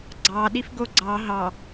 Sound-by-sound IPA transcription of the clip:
ɡ͡ǀ ɑ ɗ i f ɡ o ɡ͡ǀ ɑ ɦ ɑ

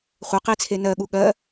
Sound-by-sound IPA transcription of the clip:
χʷ ɘ q i t͡sʰ e n ɜ ɠ u ɠ ɜ

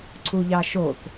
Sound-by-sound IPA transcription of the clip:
ǀ u ʎ ɑ ʃ o θ

